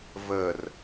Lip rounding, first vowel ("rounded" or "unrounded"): unrounded